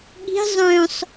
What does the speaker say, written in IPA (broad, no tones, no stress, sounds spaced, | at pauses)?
ɠ i̤ zˤ œ̃ sˤ